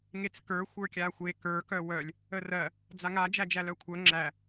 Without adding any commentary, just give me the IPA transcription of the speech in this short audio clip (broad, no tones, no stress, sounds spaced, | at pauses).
ŋ e t͡s k ə˞ xʷ ə˞ kʲ a xʷ e k ə˞ k œ w œ lʲ | ə r ɜ | d͡z a ŋ a d͡ʒ æ d͡ʒ æ l œ kʷʰ œ ŋ͡ǁ æ